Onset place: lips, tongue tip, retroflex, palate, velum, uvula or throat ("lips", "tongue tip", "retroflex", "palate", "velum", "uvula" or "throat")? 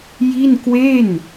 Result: palate